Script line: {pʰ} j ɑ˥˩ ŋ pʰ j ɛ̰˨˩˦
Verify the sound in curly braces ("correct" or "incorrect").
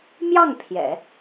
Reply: incorrect